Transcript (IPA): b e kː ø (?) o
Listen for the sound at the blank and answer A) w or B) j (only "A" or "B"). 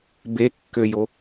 B